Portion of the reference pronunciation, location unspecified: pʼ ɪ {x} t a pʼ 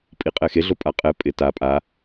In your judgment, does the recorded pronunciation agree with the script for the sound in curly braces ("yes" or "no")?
no